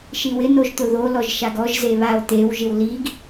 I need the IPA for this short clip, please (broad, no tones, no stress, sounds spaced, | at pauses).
ʃ i w ɪ n o ʒ t̪ ʊ ð o l ɔ ʒ ʃ a ɡ ɔ ʒ z e β a o̯ t̪ e w ʒ ɪ w l i ɡ